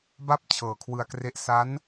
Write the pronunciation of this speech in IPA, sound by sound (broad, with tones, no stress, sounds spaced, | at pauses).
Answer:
b a˥˩ p̚ t͡ɕʰ ɤː˨˩ kʰ w ɯ˧ a̯ k r e˦˥ ʔ s a˦˥ n